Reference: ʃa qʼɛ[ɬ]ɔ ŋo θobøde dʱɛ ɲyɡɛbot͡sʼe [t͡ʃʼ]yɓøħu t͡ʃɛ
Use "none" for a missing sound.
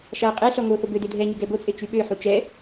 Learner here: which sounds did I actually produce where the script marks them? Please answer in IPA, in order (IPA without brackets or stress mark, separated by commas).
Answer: ɬ, t͡ʃ